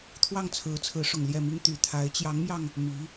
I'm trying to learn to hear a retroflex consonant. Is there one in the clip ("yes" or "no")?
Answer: yes